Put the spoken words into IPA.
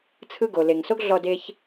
t͡sʰ ɯ˦ ɡ o˨ l e˨ ŋ s o˦ ɡ ɮ ɔ˧ d e˦ ç

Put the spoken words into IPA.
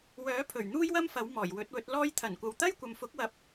w œː˨˥ pʰ ɵ˨˩ ɥ n̪ uː˥ j w ɐ˥ m f ɐ˨˥ w m ɔː˨˩ j w ɵ˨˥ t̚ w ɵ˨˥ t̚ l ɔː˥ j t̪ʰ ɐ˨˩ n kʷ ɐ˨ w t̪ ɐ˥ j kʷ ɐ˨ m f ʊ˨˥ k̚ w ɐ˨ p̚

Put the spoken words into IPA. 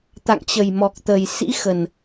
t̪ a̰˧˨ ŋ t͡ɕ ə˨˩ j m ɔ˨˩ k̚ t̪ ə˨˩ j s ḭ˧˥ x ə˨˩ n

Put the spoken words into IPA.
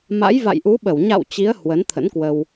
m a̰˧˥ j v a̰˧˨ j ʔ u˨˦ ɓ ə˧˩ w ɲ a̰˧˨ w t͡ɕ i˨˦ ə̯ h w ə˨˦ n t̪ʰ ə̰˧˥ n k w ə˧ w

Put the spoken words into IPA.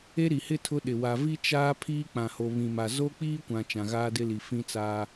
e˦ ɾ i˨ h ɪ˦ tʰ ʊ˦ ɗ ɪ˨ w a˨ v i˦ t͡ʃ aː˦ pʰ iː˦ k͡p ã˨ h o˨ β ĩ˨ m a˨ z o˦ k͡p iː˦ kʷ ã˨ t͡ʃ ã˨ ɣ aː˦ d ɪ˦ l i˨ f ĩ˦ t͡s aː˦

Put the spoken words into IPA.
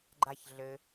ɡ͡ǃ a ç ɮ ɘ

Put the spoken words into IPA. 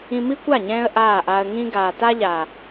ĩ˧ m i˦ kʷ a˦˨ ɲ ɛ̃ː˧ ə̯ ʔ aː˦˨ ʔ a˧ ə̯ ŋ ĩ˦ ɡ aː˨ t a˧ ʎ a˨

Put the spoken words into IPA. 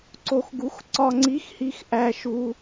ǀ o˨ x ɡ u˨˥ x ǀ ɒ˨ ŋ͡ǀ i˨˥ x h i˨ x ʔ æ˨ ʃ u˨

